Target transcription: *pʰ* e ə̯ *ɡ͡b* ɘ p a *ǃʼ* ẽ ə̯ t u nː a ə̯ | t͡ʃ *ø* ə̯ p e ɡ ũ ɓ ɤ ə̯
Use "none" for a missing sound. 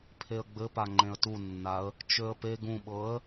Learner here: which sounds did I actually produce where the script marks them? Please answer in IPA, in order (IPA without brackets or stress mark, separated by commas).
pʰ, ɡ͡b, ŋ͡ǃ, ø